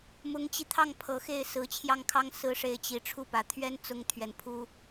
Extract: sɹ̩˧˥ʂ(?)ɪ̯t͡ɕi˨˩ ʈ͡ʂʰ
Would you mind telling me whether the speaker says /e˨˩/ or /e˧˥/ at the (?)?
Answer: e˧˥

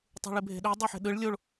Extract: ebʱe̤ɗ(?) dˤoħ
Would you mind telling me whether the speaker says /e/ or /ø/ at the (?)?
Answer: ø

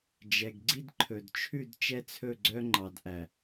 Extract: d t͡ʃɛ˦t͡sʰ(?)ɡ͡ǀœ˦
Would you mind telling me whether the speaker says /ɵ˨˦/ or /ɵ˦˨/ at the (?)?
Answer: ɵ˦˨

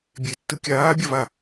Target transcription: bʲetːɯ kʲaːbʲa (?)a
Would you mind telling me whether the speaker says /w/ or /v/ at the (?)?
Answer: v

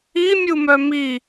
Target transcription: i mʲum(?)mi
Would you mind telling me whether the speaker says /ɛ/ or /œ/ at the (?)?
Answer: œ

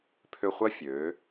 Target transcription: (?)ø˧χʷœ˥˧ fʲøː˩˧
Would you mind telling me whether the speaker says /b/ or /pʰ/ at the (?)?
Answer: pʰ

